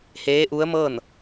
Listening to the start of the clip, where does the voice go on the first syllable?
rising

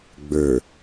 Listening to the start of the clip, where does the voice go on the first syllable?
low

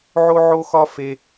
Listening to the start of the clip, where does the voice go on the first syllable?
high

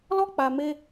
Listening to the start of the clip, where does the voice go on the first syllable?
high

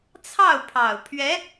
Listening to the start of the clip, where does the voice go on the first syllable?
falling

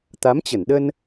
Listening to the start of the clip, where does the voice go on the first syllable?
rising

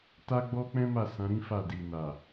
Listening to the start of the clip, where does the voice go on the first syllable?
high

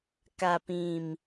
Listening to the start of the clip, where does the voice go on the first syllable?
low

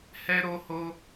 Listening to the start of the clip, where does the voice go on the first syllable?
high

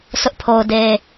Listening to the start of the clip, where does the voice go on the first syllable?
high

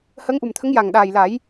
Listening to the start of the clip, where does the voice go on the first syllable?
rising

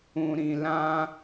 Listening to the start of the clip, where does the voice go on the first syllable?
low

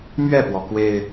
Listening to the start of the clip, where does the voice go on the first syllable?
falling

